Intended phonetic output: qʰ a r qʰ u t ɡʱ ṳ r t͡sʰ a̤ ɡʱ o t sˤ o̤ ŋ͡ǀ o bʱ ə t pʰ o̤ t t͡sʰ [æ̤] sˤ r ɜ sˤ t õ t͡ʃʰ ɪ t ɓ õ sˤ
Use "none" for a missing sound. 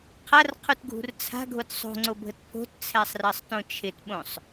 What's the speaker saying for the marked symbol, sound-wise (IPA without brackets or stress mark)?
æ